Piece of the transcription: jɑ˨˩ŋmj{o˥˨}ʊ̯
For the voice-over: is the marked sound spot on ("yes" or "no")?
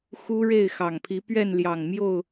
yes